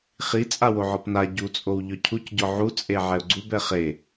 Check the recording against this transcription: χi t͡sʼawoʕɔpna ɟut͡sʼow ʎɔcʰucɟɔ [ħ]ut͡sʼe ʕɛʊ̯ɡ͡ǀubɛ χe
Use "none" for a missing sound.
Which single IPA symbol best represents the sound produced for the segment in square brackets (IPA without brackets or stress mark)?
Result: ʕ